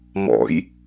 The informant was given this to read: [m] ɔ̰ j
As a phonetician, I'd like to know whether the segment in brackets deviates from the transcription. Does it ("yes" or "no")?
no